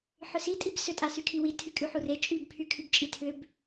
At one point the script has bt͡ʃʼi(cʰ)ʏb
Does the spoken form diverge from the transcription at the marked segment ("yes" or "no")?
yes